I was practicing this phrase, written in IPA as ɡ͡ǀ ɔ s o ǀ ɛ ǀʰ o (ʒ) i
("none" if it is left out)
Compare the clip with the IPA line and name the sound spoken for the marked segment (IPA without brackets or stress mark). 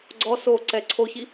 ç